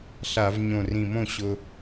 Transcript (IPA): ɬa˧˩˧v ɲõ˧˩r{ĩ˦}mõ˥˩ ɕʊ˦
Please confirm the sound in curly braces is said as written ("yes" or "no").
no